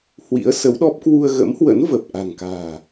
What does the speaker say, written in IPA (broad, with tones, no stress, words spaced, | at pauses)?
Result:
hwḭ˧˥ə̯sə˨˦wɗɔ˦˥p̚ kwu˧ə̯ɣə̰˧˥mhwə̰˧˥nvə˨˩p̚ ʔa̤˨˩ŋka̤ː˨˩